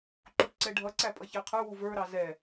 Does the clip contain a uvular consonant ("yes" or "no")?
yes